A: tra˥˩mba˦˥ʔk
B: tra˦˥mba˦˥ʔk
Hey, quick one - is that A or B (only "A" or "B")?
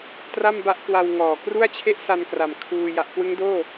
A